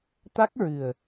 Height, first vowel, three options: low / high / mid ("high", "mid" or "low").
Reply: low